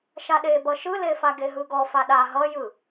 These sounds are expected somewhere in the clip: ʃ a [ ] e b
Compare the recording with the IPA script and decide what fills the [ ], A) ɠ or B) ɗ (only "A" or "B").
B